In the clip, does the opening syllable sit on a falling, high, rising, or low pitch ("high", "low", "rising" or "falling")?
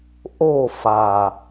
falling